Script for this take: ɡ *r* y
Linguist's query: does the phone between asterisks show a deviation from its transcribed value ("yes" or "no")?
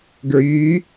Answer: yes